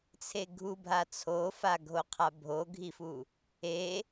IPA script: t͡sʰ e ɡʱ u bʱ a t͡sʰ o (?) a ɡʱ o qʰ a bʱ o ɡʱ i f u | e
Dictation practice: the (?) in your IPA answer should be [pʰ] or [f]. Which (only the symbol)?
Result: f